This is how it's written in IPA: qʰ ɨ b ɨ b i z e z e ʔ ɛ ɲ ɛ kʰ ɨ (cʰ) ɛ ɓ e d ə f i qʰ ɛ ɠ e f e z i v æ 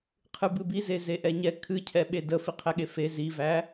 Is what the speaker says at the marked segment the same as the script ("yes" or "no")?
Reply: yes